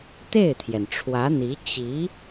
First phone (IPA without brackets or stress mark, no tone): t̪